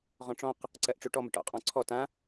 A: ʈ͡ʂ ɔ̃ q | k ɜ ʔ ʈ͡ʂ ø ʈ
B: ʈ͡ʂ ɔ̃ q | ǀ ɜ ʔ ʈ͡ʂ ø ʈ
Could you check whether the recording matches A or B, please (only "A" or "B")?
B